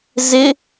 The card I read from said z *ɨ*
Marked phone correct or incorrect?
incorrect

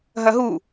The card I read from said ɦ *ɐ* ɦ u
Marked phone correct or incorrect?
correct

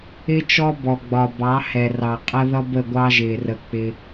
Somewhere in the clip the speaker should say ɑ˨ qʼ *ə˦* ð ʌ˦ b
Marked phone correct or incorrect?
incorrect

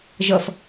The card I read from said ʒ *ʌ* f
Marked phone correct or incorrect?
correct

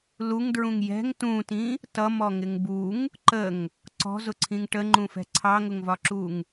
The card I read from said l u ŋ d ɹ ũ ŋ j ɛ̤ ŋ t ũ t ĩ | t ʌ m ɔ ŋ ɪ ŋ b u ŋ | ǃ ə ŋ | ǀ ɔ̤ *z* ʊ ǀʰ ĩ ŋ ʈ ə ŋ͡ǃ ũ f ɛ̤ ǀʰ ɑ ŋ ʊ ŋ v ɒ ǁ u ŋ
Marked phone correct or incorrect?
correct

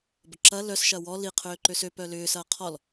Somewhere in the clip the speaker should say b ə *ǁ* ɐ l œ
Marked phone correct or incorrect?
correct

